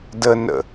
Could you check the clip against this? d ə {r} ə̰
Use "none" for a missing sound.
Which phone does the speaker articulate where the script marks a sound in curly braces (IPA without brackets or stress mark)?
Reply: n